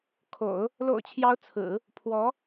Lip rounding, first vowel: rounded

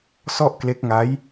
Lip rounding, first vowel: rounded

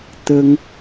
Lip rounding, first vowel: unrounded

